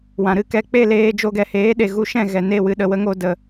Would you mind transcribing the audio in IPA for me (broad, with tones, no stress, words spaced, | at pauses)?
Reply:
wã˨ɾɨ˦˨kɛ˦ k͡pe˦˨leː˧d͡ʒo˧ɡɛ˨ heː˨˦ɗe˨ ɣu˧ʃɛ̃˦˨ ɣɛ˨ ne˦˨wɨ˧ ɗə˨wə˦ŋo˧ də˨